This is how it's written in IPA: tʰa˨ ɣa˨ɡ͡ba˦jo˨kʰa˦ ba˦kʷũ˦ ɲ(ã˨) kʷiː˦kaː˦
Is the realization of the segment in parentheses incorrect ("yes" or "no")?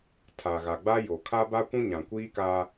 no